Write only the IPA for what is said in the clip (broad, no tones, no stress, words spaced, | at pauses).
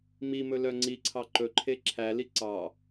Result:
mimɵlœ ŋ͡ǀiǀʰɑ ǃɵǃʰe ǁʰæli ǀɑ